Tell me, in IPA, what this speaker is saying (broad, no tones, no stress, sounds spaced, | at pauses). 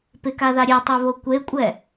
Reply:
p ɪ k a ð a ɾʲ e tˤ ɛ β o kʷ e kʷʼ ɛ